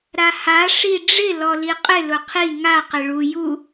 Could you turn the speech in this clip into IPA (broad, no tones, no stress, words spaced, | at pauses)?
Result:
ɾaha ʂiɖ͡ʐɪ lɔliqʼɪ lʊqʰi ŋa qɪɭu ju